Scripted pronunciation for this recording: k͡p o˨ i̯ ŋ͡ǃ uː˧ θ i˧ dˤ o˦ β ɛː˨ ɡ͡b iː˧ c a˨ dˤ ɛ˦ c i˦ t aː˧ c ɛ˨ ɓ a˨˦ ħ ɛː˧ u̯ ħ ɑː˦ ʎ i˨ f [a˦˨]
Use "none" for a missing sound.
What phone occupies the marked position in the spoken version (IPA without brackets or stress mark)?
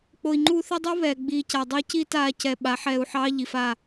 a˦˨